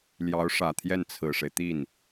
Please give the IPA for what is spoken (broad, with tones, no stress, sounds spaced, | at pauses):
l j ɑ˧˥ ʊ̯ ʂ ä˨˩ t̪ʰ j ɛ˥˩ n t͡sʰ ɹ̩˨˩ ʂ e˦ ɪ̯ t̪ i˥˩ n